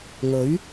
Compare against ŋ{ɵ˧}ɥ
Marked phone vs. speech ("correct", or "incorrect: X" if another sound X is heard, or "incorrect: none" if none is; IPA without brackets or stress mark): incorrect: ɵ˨˥